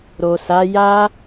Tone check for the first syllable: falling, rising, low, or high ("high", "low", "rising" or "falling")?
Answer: low